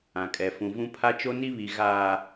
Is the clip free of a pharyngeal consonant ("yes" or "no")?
yes